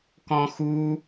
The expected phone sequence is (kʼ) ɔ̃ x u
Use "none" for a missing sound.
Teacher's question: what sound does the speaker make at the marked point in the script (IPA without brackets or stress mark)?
k